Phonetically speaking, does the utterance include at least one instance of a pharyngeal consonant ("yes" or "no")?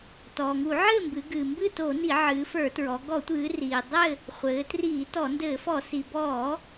yes